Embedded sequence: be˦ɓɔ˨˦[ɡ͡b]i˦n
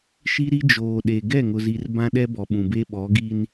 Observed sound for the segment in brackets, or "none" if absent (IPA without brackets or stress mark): ɡ